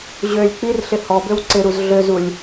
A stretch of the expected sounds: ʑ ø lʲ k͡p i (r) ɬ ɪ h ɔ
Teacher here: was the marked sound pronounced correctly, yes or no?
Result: yes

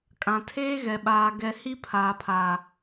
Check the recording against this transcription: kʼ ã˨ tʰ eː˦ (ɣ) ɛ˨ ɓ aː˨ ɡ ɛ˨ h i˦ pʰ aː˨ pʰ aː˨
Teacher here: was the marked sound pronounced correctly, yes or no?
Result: yes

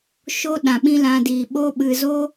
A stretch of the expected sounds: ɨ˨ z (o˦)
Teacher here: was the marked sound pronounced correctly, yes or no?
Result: yes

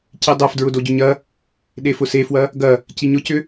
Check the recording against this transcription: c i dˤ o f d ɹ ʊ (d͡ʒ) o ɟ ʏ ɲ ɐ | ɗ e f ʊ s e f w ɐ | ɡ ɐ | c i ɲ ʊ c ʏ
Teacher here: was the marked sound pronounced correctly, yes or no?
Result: no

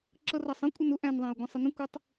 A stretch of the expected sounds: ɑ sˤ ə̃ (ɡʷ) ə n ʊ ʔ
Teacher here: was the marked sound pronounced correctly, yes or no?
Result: no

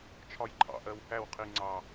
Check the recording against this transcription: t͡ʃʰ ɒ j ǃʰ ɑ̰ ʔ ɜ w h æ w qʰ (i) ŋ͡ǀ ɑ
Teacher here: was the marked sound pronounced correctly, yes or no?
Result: yes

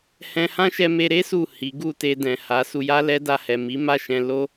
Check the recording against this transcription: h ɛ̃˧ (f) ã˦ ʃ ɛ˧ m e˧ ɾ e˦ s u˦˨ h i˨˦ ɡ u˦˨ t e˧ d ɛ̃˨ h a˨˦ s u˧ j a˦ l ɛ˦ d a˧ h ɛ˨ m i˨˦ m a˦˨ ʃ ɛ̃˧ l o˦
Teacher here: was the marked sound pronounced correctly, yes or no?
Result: no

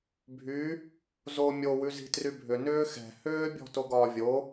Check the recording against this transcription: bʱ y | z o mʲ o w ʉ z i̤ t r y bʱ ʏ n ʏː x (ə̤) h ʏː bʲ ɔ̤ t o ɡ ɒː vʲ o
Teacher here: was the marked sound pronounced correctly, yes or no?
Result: no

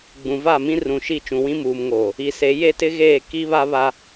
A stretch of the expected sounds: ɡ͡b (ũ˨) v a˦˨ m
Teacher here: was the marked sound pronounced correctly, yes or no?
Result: yes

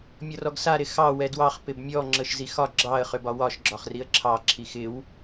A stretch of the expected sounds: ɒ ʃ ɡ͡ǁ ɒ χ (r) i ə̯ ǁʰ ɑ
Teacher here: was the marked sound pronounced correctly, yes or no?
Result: yes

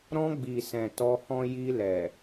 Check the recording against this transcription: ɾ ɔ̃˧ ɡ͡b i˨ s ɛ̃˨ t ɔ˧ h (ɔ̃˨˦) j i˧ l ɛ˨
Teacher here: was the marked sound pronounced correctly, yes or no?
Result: no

